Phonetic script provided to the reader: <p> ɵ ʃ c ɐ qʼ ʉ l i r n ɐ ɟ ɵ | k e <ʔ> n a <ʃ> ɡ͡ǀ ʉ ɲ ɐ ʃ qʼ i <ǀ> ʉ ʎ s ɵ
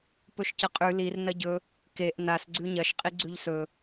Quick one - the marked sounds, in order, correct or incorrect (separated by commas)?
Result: correct, correct, incorrect, incorrect